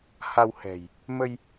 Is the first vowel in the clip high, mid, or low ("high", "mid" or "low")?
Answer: low